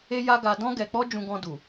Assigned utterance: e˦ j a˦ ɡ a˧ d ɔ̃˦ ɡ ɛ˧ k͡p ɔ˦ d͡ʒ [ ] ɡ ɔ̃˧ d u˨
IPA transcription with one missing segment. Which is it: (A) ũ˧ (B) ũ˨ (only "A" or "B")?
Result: A